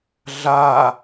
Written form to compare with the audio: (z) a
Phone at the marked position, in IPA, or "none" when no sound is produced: ɮ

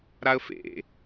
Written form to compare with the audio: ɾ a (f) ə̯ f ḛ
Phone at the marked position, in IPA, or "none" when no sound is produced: none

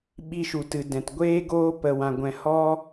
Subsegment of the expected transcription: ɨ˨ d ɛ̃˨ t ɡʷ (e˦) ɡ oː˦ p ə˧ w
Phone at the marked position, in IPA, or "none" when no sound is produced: eː˦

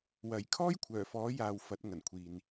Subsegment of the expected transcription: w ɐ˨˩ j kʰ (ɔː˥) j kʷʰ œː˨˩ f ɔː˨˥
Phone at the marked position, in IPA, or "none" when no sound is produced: ɔː˥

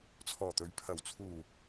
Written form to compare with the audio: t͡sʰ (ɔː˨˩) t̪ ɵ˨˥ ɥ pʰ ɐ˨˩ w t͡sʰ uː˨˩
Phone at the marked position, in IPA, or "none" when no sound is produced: ɔː˨˩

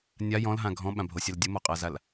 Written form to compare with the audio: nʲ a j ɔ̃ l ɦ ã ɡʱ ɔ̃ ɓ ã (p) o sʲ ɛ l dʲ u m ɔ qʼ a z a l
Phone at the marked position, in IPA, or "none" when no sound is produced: bʱ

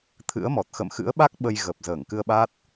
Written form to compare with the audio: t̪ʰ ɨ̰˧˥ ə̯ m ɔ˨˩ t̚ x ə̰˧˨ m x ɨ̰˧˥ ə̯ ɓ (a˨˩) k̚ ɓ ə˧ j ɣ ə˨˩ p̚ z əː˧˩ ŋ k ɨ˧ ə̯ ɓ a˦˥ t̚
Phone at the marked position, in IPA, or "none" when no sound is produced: a˦˥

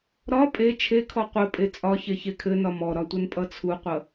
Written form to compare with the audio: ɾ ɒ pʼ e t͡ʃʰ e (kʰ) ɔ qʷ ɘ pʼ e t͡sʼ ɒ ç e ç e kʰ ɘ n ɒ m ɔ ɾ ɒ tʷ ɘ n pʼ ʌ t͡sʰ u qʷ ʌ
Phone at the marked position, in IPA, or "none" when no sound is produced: kʰ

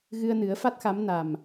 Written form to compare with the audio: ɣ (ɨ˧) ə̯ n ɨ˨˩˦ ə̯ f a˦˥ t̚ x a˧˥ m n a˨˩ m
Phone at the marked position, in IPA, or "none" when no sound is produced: ɨ˧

